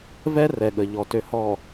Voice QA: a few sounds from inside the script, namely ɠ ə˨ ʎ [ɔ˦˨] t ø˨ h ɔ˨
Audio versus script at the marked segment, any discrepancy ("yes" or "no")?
yes